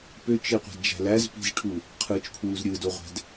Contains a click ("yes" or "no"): no